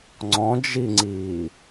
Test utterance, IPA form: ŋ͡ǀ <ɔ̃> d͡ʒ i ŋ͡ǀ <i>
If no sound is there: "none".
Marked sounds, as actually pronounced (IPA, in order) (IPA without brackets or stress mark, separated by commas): ɔ̃, iː